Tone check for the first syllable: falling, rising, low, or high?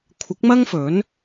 rising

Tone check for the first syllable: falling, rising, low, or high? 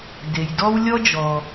low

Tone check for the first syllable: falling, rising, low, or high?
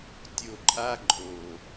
low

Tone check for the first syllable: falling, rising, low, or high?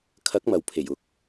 rising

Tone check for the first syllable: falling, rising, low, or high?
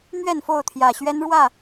falling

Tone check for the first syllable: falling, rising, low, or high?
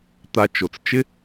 low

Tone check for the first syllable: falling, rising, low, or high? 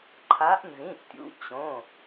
rising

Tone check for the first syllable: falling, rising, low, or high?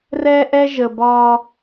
high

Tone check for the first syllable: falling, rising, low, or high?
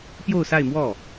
falling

